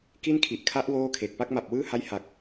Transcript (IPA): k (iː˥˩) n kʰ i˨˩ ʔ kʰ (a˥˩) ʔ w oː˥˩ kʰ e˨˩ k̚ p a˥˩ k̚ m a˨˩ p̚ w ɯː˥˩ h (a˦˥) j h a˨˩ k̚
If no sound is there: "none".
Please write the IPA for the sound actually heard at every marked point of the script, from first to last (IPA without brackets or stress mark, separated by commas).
i˥˩, a˦˥, a˦˥